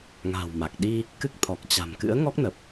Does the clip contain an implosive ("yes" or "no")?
yes